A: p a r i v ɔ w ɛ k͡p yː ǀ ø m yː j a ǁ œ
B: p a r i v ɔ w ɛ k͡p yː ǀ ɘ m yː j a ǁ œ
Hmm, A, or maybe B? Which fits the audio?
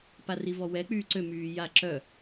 A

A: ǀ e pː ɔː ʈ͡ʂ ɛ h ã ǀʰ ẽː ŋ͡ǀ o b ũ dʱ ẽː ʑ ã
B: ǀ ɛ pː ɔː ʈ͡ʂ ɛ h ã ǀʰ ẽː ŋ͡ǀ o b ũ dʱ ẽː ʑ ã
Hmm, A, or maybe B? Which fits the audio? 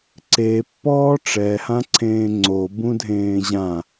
A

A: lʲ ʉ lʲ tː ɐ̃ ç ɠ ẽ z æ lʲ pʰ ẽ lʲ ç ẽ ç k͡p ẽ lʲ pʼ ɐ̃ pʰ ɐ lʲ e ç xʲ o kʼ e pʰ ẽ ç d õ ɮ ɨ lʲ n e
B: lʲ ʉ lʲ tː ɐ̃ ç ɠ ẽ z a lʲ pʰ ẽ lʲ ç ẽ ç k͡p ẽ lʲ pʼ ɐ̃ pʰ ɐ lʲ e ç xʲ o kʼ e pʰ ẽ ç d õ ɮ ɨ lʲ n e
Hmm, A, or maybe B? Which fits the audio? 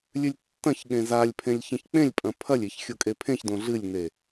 B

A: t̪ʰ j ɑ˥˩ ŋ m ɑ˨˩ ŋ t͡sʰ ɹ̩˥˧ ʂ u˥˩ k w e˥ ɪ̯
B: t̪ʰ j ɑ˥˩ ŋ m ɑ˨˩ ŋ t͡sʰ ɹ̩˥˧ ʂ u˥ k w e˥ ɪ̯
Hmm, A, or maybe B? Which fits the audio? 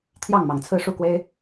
A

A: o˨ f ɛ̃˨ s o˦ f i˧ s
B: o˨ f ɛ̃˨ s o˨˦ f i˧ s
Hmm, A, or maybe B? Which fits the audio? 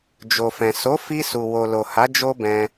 B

